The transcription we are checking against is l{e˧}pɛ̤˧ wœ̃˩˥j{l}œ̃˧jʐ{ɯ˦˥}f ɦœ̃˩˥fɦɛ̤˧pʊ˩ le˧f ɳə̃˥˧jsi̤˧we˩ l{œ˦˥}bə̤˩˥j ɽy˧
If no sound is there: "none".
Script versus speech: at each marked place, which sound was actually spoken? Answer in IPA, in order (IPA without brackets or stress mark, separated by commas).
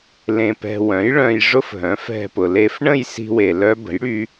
ẽ˧, ɭ, ʊ˦˥, œ˦˥